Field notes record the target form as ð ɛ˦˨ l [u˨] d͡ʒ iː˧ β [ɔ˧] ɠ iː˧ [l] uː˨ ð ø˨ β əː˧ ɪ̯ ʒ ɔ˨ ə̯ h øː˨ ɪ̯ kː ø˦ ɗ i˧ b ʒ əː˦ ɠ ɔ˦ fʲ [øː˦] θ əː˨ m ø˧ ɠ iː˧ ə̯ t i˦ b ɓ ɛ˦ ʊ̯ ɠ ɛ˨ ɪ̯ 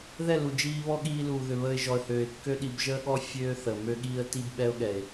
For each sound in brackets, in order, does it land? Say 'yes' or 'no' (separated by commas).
yes, no, yes, yes